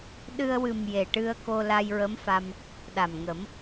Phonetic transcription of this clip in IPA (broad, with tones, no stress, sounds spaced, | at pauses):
ɗ ɨ˧ ə̯ w ɨ˨˩ m j e˨˩ ʈ ɨ˧ ə̯ k o˧ l a˧ j ɹ ə˧˥ m f a˧ m | ɗ a˨˩ m ŋ ə˨˩˦ m